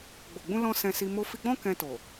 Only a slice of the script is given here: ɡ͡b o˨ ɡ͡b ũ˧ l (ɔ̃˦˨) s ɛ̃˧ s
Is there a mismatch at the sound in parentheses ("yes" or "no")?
yes